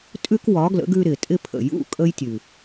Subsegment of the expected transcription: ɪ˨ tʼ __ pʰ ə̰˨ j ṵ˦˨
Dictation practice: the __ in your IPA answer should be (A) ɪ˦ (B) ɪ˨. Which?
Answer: A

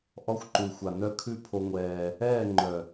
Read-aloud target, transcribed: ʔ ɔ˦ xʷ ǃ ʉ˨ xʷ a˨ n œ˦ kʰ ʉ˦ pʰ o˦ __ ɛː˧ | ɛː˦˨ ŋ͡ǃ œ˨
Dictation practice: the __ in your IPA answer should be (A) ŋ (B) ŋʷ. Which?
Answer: B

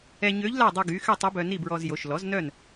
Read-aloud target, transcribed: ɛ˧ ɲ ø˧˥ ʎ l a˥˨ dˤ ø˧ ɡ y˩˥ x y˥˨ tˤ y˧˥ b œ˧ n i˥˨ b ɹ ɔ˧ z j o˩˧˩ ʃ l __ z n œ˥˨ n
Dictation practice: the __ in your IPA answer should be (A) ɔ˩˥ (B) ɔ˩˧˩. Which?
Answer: A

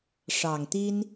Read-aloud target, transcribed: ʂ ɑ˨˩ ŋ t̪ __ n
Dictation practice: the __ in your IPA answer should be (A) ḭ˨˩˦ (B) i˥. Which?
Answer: B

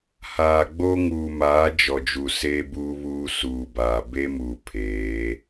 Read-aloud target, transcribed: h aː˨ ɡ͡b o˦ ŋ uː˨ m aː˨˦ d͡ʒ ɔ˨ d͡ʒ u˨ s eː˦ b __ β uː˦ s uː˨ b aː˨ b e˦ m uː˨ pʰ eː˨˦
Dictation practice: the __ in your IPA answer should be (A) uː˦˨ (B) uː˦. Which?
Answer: B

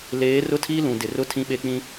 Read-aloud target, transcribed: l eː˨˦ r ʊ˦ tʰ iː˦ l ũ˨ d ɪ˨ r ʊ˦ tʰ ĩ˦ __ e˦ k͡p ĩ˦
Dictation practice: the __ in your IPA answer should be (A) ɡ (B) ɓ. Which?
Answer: B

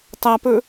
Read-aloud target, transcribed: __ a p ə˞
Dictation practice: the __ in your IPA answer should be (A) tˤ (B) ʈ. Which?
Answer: A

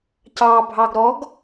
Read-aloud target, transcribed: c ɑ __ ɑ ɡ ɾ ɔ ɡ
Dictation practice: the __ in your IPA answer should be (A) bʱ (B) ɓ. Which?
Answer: A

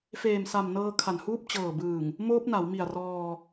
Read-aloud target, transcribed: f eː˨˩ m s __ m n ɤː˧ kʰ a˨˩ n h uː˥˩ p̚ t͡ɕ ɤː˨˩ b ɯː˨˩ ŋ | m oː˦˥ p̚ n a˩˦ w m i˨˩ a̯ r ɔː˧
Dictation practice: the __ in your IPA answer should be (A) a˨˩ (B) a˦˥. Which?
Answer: A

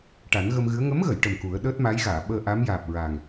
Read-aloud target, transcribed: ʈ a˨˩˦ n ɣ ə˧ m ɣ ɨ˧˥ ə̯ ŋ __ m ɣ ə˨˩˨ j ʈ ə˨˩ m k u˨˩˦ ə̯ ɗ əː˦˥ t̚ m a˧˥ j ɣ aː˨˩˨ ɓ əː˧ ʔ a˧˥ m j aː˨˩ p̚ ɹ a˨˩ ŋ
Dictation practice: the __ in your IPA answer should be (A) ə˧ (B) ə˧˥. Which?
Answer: B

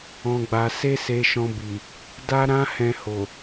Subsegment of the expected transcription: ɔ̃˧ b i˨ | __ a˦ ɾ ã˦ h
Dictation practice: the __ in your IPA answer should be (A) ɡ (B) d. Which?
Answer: B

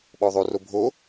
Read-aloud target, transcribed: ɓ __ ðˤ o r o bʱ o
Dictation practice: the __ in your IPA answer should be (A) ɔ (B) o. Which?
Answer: A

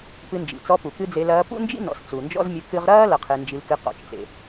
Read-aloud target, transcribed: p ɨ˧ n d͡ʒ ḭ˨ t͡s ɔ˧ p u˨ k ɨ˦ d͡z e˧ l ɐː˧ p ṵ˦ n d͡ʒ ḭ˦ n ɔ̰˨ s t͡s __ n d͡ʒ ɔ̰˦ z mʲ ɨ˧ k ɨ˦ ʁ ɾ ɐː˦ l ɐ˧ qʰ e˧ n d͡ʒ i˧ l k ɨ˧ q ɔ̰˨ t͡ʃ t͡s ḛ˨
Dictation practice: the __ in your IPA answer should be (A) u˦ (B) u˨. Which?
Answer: B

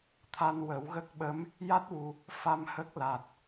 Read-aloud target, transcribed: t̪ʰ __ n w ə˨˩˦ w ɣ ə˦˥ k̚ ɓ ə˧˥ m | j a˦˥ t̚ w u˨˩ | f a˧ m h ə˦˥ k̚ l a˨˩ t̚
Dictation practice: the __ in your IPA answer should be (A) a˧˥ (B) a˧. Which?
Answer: B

